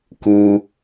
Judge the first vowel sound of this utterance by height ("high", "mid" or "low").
high